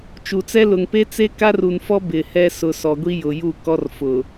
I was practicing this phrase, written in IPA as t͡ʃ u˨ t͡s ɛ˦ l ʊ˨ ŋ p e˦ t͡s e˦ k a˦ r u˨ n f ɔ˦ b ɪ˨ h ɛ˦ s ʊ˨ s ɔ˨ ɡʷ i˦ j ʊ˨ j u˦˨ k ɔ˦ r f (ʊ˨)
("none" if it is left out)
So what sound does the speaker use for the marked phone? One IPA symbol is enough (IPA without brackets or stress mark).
ʊ˨